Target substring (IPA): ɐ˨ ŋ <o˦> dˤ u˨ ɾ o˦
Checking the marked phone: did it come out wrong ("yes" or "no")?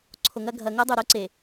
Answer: no